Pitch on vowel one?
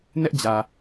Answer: high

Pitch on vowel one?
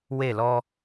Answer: falling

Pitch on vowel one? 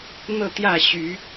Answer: falling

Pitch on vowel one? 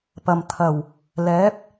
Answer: low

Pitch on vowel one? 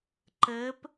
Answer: rising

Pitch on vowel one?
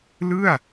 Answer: falling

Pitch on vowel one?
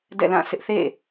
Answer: falling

